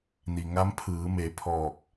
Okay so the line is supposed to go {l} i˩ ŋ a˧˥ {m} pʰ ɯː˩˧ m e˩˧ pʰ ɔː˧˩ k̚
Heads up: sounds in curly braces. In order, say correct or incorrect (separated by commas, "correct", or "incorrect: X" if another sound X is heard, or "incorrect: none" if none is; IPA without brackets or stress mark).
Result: incorrect: n, correct